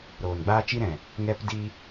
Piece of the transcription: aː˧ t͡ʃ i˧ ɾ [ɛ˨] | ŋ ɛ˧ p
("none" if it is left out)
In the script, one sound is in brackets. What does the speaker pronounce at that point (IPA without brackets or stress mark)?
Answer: ɛ̃˨